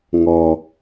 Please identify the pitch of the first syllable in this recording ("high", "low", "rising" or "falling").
low